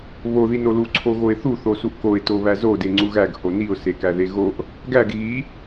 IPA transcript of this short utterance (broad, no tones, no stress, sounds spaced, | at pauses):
β o ð i n o l u ǀʰ o ɣ o ɪ̯ θ u θ o s u ʔ k o ɪ̯ t o β æ z o d e ŋ͡ǀ u ɣ æ ɡ h o n i ʊ̯ s e k æ ð e ɣ o ʔ | ɡ æ ɡ ɣ i